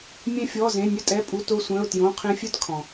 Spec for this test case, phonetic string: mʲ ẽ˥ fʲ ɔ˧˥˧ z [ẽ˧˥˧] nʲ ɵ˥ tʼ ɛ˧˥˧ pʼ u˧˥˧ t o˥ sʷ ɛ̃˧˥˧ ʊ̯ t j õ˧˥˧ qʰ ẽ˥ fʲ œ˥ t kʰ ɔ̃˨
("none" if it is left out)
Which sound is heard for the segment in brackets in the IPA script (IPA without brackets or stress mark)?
ẽ˧˥˧